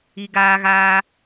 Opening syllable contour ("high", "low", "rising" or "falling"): high